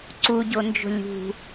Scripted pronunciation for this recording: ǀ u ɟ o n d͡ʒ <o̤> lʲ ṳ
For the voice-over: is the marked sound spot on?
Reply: yes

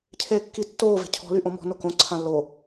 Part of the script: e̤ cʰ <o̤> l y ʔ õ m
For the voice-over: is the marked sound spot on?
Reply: no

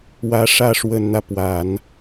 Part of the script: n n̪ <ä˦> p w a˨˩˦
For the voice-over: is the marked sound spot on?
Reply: yes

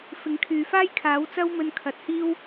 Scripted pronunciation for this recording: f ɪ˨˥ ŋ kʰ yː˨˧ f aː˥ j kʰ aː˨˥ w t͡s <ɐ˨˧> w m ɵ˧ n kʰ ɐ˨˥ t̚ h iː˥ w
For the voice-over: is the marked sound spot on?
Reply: no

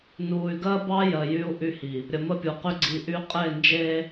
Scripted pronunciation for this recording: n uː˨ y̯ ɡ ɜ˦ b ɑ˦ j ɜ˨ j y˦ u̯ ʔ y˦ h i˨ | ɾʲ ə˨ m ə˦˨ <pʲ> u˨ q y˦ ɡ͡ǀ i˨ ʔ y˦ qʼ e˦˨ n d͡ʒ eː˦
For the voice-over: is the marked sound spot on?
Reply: yes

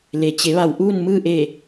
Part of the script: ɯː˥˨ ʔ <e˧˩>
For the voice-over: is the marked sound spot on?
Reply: yes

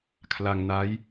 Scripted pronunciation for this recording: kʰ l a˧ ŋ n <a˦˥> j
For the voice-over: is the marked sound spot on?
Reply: yes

